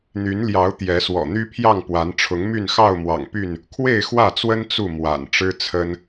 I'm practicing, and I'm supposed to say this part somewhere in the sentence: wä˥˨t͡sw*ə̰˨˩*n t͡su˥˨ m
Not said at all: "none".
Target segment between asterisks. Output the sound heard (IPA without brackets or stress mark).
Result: ə˦